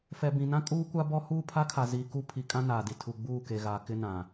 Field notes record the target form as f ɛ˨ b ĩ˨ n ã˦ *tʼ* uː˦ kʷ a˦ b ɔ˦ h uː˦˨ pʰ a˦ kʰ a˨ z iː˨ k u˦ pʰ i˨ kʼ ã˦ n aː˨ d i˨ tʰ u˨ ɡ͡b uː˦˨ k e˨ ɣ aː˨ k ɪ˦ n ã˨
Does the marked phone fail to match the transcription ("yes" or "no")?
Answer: yes